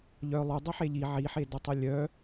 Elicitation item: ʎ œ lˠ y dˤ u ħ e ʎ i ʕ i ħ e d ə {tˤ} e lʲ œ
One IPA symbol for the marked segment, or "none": tˤ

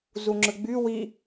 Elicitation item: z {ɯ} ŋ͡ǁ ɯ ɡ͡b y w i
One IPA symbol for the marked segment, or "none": u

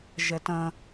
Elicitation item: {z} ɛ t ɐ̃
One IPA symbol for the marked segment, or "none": ʒ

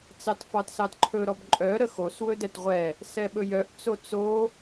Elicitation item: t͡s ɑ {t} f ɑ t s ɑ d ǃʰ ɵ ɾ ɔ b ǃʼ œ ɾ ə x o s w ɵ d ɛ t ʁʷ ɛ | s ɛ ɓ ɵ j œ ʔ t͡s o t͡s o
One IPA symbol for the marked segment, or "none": t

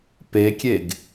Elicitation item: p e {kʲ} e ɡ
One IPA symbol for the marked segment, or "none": kʲ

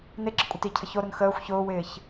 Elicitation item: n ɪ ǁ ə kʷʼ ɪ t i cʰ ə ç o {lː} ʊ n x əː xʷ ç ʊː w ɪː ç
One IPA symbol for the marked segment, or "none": ɾ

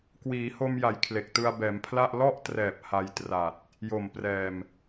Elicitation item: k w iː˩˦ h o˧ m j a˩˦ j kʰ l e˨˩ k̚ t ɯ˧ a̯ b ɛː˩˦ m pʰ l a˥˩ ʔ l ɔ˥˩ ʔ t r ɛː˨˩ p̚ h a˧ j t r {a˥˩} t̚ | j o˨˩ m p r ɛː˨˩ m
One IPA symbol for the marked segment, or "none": a˨˩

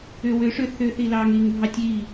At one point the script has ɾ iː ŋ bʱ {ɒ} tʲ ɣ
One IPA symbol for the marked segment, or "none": ɑ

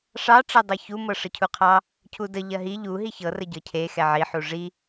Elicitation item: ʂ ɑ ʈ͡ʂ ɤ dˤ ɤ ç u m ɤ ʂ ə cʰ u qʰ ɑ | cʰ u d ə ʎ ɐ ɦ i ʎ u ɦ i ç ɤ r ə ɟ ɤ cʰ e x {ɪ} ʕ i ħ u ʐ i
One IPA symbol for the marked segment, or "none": ɛ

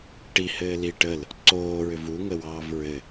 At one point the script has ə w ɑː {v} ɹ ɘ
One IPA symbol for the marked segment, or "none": v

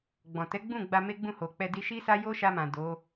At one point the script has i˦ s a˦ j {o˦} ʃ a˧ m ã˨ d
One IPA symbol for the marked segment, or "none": o˦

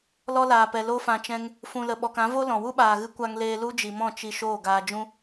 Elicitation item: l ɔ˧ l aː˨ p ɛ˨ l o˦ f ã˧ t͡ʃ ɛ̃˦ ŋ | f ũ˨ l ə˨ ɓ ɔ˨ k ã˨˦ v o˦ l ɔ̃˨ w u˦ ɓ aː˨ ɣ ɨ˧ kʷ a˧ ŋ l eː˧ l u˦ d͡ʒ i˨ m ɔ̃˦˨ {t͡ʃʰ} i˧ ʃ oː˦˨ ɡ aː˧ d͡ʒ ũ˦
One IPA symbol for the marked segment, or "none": t͡ʃ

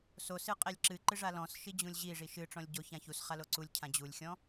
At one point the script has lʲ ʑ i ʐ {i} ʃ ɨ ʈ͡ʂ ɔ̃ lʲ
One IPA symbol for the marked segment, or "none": i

